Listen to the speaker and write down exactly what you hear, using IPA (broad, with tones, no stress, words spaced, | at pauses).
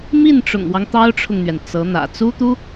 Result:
mi˥˩nʈ͡ʂʊ̰˨˩ŋwɑ˦ŋ t̪ɑ˥ʊ̯ʈ͡ʂʰʊ˨ŋn̪ɥɛ˩n t͡sɤ˧˥n̪ä̰˨˩ t͡su˥t̪u˥